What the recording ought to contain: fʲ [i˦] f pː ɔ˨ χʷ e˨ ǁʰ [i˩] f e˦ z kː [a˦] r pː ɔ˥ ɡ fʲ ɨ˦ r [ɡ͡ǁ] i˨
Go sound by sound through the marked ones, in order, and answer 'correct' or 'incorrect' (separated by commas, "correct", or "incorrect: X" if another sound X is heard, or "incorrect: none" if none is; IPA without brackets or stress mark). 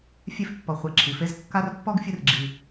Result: incorrect: e˦, correct, correct, correct